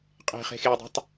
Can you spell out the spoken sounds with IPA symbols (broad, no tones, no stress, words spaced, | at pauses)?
qʼe̤χe̤xeʊ̯dˤo̤tˤ